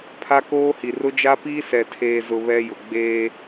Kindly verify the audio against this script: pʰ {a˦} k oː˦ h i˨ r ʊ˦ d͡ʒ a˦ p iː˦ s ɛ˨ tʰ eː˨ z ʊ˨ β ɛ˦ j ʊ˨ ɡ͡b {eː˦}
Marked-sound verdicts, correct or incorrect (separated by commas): correct, correct